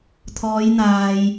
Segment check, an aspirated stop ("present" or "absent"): present